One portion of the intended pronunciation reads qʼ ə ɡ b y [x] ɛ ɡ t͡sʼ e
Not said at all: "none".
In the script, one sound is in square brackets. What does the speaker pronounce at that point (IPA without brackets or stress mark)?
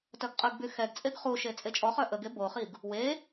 x